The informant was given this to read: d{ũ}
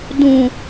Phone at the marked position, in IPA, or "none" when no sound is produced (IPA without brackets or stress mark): ũ